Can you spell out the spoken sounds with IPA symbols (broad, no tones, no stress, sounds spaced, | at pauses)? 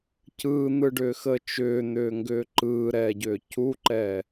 c ɯː n̪ ɯ ɖ ʏː x əː t͡ʃ ʏː n̪ ʏː ŋ ɡ ʏː ǃ ɯː ɾ ɛː ɟ ʏː c u ǃ ɛː